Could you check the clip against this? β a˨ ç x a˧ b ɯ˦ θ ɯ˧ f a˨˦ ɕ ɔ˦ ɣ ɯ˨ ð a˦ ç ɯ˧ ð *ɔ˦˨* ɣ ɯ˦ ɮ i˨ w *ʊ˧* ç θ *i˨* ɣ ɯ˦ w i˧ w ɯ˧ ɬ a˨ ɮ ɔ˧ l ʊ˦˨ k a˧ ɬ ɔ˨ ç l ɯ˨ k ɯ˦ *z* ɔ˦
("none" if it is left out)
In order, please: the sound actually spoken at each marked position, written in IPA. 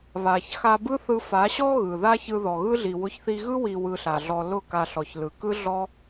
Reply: ɔ˨, ʊ˧, i˧, ɮ

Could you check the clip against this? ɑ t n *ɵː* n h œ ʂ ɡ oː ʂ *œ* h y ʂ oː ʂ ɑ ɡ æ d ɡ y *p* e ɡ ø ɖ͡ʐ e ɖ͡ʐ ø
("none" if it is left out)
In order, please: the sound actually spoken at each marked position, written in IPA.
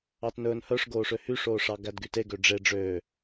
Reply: ɵː, ø, t

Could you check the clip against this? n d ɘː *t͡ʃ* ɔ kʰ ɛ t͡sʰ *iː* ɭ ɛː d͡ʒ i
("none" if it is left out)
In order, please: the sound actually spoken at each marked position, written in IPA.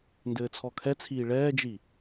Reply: t͡sʰ, iː

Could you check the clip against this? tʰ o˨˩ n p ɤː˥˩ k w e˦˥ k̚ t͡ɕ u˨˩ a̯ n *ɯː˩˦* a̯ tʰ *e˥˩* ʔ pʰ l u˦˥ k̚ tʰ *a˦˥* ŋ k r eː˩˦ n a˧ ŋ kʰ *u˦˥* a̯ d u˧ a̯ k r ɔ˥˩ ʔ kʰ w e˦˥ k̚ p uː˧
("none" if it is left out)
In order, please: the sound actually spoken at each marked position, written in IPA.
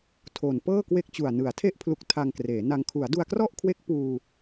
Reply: ɯ˩˦, e˥˩, a˧, u˩˦

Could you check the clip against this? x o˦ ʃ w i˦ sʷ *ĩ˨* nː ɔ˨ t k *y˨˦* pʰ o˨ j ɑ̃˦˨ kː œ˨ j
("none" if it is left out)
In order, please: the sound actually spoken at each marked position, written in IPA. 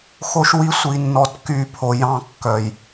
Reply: i˨, y˨˦

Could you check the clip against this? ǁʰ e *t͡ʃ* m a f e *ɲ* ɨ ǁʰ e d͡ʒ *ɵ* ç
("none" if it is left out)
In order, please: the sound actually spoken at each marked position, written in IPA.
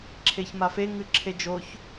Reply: ç, ŋ, o

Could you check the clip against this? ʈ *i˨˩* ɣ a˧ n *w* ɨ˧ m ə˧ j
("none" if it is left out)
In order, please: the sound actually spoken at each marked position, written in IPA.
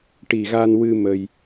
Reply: i˨˩, w

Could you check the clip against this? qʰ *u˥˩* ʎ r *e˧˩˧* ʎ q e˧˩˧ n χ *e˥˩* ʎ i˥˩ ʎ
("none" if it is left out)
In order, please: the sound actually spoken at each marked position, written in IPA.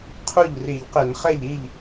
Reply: u˥˩, i˧˩˧, ɛ˥˩

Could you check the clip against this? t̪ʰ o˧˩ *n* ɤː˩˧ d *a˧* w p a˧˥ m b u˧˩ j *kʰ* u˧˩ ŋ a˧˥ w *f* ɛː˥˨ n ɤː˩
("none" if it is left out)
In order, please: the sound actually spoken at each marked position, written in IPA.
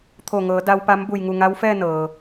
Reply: ŋ, a˧, ŋ, f

